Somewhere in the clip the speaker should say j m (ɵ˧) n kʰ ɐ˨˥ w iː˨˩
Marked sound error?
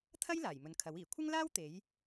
yes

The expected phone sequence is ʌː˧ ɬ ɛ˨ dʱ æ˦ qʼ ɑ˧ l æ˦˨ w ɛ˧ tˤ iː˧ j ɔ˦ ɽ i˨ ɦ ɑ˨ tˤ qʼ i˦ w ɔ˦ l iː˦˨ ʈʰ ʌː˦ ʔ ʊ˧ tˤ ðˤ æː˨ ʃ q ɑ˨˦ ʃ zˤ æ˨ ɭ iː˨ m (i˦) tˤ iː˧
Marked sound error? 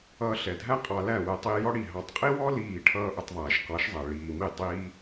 yes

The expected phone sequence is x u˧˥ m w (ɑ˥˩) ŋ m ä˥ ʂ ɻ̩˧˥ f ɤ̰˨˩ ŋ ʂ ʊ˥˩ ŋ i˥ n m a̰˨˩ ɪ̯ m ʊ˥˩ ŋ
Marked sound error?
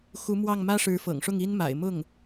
no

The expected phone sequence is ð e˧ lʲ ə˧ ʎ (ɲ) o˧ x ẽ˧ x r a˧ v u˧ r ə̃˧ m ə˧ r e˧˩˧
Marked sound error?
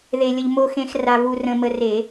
yes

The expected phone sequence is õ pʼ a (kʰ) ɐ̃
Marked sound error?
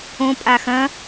yes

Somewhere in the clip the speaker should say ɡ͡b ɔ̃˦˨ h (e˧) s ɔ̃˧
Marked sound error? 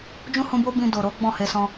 no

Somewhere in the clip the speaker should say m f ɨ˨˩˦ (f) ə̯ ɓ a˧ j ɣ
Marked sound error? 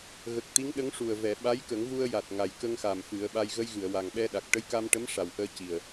yes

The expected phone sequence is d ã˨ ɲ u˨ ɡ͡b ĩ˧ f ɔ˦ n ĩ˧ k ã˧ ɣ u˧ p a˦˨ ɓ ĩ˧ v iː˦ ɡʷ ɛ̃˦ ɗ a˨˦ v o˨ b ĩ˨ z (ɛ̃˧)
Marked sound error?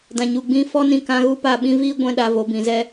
yes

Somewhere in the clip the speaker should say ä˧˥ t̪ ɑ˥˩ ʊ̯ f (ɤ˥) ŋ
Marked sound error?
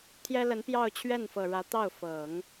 yes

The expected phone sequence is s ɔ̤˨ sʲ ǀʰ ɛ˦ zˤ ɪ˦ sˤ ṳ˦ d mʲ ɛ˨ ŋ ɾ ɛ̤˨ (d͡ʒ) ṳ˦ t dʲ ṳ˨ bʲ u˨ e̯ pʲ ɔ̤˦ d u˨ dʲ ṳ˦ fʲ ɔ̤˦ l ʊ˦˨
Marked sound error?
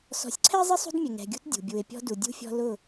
yes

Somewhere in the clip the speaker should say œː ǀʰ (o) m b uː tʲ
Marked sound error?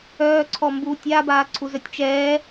yes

